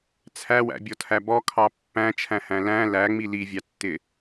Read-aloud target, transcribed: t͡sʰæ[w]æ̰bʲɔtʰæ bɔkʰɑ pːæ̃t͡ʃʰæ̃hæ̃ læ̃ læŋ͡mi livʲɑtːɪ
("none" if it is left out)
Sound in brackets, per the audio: w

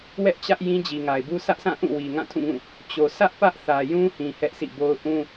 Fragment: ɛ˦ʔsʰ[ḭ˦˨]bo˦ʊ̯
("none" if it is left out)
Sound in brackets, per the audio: ḭ˦˨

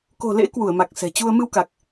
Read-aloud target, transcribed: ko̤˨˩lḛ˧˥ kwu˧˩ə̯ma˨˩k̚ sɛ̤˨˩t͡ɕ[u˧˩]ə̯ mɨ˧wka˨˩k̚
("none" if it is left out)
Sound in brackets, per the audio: u˧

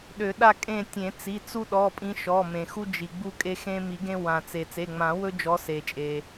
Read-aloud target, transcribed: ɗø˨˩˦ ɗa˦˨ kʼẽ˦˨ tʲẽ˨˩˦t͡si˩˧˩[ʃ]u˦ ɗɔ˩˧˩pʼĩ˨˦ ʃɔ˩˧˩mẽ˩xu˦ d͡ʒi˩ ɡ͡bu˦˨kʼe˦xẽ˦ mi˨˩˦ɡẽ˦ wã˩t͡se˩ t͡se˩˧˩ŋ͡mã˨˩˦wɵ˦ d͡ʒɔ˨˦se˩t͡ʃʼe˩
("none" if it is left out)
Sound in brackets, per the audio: t͡s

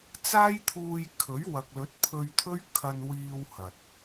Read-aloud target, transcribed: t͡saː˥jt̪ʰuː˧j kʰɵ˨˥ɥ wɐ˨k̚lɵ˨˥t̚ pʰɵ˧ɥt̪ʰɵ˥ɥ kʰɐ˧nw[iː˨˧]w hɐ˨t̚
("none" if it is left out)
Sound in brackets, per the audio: iː˧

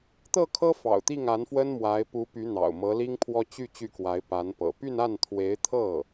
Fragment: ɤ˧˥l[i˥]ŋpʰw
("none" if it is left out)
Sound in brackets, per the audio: i˥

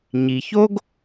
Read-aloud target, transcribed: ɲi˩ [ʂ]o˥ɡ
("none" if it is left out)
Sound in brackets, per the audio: ç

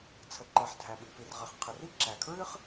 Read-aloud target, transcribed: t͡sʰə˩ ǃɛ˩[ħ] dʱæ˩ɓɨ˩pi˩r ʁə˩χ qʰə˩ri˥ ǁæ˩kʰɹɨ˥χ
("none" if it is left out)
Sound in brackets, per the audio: ħ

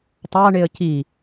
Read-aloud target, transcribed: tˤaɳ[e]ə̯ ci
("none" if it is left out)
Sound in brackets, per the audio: e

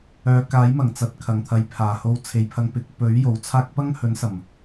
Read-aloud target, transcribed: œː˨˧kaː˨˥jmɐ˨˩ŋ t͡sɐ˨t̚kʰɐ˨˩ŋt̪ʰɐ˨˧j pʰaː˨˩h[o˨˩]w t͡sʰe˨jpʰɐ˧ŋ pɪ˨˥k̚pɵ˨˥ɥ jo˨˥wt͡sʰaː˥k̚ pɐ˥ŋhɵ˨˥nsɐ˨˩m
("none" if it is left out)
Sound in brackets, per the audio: o˧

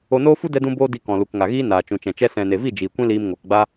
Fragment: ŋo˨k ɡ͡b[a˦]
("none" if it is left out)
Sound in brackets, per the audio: a˦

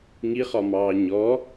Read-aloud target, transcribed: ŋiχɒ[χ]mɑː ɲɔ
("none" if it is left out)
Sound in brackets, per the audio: none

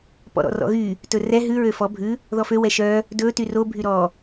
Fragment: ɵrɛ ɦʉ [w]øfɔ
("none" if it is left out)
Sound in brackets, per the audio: ɹ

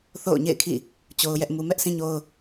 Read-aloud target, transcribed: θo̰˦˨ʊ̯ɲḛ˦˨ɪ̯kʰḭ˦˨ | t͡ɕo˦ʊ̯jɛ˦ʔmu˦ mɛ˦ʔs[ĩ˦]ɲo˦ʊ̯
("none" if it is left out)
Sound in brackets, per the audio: ĩ˦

